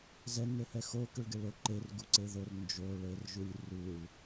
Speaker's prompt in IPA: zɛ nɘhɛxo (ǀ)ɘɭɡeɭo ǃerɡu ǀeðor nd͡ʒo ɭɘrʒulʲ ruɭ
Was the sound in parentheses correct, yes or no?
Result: no